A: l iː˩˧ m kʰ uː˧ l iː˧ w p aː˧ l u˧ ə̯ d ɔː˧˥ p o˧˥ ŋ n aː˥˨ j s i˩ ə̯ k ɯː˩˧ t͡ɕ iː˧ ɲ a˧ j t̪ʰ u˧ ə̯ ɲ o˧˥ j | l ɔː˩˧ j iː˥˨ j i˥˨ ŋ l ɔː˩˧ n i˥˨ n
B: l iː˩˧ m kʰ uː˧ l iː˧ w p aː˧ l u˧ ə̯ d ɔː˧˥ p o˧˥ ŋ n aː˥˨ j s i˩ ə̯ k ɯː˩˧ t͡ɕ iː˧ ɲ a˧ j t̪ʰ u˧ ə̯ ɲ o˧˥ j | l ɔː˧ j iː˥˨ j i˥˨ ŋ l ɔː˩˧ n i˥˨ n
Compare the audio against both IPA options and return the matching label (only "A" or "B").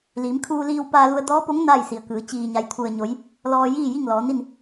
B